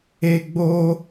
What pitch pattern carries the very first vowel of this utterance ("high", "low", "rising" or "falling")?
high